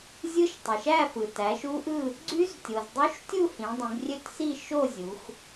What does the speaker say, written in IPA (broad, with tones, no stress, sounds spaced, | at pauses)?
zʲ ɯ˦˥ ʃ tˤ i˩ ʃ æ˥˧ f ɯ˩ t æ˩˧ ʃ u˦˥ ʔ ɯ˥˧ | ɡ͡ǀ y˦˥ z tʲ o˩ z dˤ y˦˥ ʃ tʲ u˥˧ h ĩ˩˧ dˤ ĩ˩˧ ɡ rʲ ø˥˧ t s i˥˧ ʃ o˥˧ zʲ u˩˧ x